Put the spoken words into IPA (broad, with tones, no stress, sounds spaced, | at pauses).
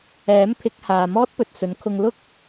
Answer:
ɛː˨˥ m pʰ ɪ˨˥ k̚ h aː˨ m ɔː˥ t̚ p ɵ˨ t̚ s ɵ˨˧ n kʰ ʊ˧ ŋ l ʊ˥ k̚